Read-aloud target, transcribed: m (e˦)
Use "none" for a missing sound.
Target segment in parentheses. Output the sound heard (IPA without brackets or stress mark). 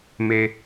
e˦